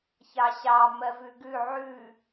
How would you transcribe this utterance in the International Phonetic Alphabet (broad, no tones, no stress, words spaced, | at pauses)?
çɑɕɑ mɜvʉɡʉ ʕʉ